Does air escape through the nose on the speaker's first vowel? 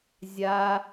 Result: no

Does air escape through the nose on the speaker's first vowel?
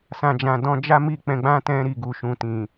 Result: yes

